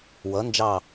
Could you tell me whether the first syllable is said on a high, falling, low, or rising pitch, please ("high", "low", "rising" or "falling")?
rising